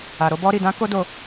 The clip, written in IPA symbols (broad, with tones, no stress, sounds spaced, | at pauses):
a˨ ɾ o˨˦ b ɔ˦ ɾ i˦˨ d ã˨˦ k o˦ d o˦˨